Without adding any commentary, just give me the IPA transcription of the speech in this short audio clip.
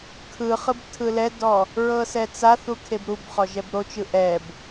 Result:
kʰɯχɯb tʰɯlɛdɔ | ɹɤsɛt͡saθu kʰebɾubχɔ ʒɛbɾot͡ʃɯ ʔɛb

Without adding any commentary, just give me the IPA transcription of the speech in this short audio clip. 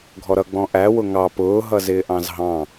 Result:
ɡʱɔɾʌ ɡ͡bɔ̃ʔæ wʊŋɑ pʊː ɦʌzɪːʔɑ̃zɦɑ̃

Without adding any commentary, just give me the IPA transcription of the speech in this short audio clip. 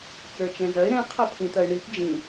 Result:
t͡sə˞t͡ʃɛ̃zɐɪ̯ ɾɛ̃ qʰɐpʰĩt̪ɐɪ̯ɳip d͡ʒĩ

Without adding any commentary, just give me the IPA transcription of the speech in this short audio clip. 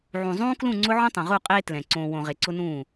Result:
ʕũ˨zˤũː˦klũ˦˨ŋ͡ǀʊ˦ ʕõ˦tˤõ˨ʁu˦˨ qʼeː˦ tlɛ̃˨ ǀõː˨wõ˨ ʁe˨ǀʊ˦nũː˦˨

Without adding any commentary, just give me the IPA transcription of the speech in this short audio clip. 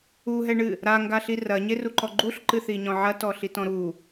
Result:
uɦɛɳɨ | ɾaŋɡaɬi rɐɲeruǃɔ ɡ͡ǃuɬǃɨθiɲɔ̃ ʕɐtɔɬitɔ̃ ɾu

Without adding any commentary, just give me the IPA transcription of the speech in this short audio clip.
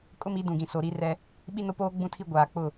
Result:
kʼʊ˦mi˨˦dũ˨ɡĩ˨ so˨ɾi˦ rɛ˦ | ɓi˦no˦poː˦ ɡ͡bũ˦tʰi˦ ɡʷaː˨k͡pʊ˦˨

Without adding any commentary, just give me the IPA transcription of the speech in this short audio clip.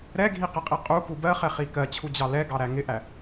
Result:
ɾɛɡʱiqɪqʼi qʼuku bɜχɛχi kɜt͡ɕʰud͡ʑɑ lɛɡɑɾæ ŋɪʔæ

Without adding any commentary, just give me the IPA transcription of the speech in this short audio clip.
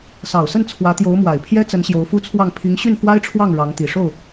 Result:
sɑ˨˩ʊ̯sə˥˩n t͡sʰwä˧˥t̪jo˧˥ʊ̯mwa˨˩ɪ̯pʰjɛ˥ t͡sə˧˥nɕjo˧˥ʊ̯fu˥t͡sʰwɑ˥˩ŋ pʰi˧˥ŋɕy˥˩nfwa˥ɪ̯ʈ͡ʂʰwɑ˥˩ŋ ɻɑ˧˥ŋt̪i˨˩ʂo˥˩ʊ̯

